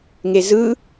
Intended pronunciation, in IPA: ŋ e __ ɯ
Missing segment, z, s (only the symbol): z